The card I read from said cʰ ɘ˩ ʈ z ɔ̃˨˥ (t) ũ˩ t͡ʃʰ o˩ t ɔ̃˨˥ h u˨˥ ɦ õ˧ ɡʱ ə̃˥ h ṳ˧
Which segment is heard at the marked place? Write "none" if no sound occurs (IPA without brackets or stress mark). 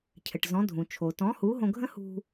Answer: dʱ